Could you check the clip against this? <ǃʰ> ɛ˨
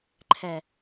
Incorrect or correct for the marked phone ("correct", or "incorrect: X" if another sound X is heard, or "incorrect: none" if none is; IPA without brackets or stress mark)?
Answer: correct